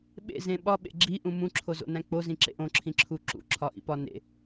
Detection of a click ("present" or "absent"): present